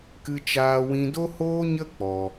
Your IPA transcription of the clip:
kɨ˦t͡ʃaː˦wĩ˦ do˦hoː˦ɲə˦ k͡pɔ˧

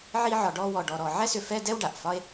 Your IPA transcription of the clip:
ʕi˥ʕɒ˧ ɖɔ˥wɔ˧ɖɔ˧ɾɔ˧ ʕɛ˥sʏ˧ fɛ˥dɛ˥w ɖa˩ʔfɒ˥e̯

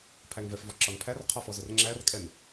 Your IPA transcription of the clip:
pʰæŋvɛfvɔ ǁɒnpʰærqʰɒ fɔzʊrŋ͡ǁærkʼɛn

